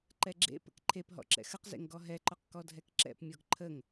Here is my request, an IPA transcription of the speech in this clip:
ǃ ɛ ɡ͡ǁ ḛ p ə̰ k ǃʰ e p ɦ ɔ̰ ǁ ɛ̰ x ə q z ḛ ŋ ɡ ɔ ɦ ɛ ǃ ɔ q k ɔ dʱ ɛ k ǁ ɛ̰ p mʲ ɔ ɡ ǃʰ ə ŋ

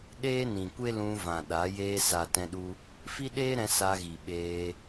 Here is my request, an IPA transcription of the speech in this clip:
ɗ eː˦ n ĩ˨ kʷ e˦ l ũ˧ v ã˨ ɗ a˨˦ j eː˧ s a˨ t ɛ̃˧ ɗ u˧ | f i˦ ɗ eː˦ ɾ ɛ̃˧ s a˧ ɣ i˨ ɓ eː˧

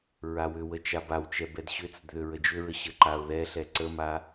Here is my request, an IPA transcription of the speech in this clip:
ɹ a w ʏ w ə t͡ʃ a b a w t͡ʃ ɛ b ɛ d ɕ ʏ t͡s ə d ð ʏ ɹ ə d͡ʒ ʏ ɹ ə ɕ ə ǃ a ʊ̯ ð ɛ ɬ ɛ ǀ ə m a

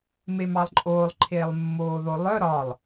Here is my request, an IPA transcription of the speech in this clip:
m e m ɑ lˠ ǃʼ oː lˠ ǃʰ eː lˠ mː oː ð o lˠ œ ɾ ɒ lˠ

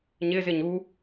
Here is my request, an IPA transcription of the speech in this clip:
ɲ ɪ z ɪ ɲ u

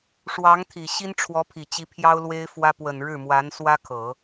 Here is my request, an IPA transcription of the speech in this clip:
ʂ w ɑ˧˥ ŋ t̪ʰ i˨˩ ɕ i˥ n ʈ͡ʂʰ w ɔ˧˥ pʰ i˨˩ t͡ɕ i˧˥ pʰ j ɑ˥ ʊ̯ l w e˥ ɪ̯ f w ä˥ p w ə˨˩ n ɻ ɻ̩˥˩ m w a˧˥ n s w ä˥ kʰ ɤ˨˩˦

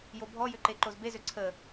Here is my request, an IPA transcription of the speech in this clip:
j o bʱ ɔ j ʏ ǃ e ǃ o z b e z ø ǀʰ ə

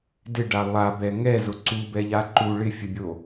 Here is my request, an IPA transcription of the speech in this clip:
d ɪ ɖ a lˠ a b ɛ ŋ ɛ z ʊ ǀ u b ɛ ʎ a ǃ u ɭ ɪ fʲ ə bʲ o

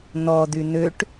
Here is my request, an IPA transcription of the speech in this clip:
n̪ ɔ d̪ y n̪ ø ʈ

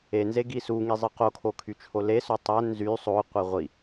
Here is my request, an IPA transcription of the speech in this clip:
e n z e ɡ i s u ŋ i zˤ ɯ q o kʰ o kʰ y t͡ʃʰ o l e s o tˤ æ n z y sˤ o qʷ i ʁʷ i

